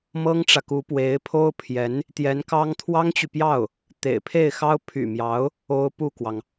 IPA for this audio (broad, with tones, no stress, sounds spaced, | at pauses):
m ɤ˥ ŋ ʈ͡ʂ ä˨ k u˧˥ p w e˧˥ ɪ̯ pʰ o˥ ʊ̯ pʰ j ɛ˧˥ n | t̪ j ɛ˧˥ n k ɑ˥ ŋ t̪ʰ w ɑ˥ ŋ t͡ɕ y˨ p j ɑ˥˩ ʊ̯ | t̪ ḛ˨˩ ɪ̯ pʰ e˥˩ ɪ̯ x ɑ˥ ʊ̯ pʰ y̰˨˩ m j ɑ˧˥ ʊ̯ | o˥ ʊ̯ p u˥˩ k w ɑ˩ ŋ